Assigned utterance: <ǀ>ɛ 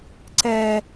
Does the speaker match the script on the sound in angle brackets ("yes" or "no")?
yes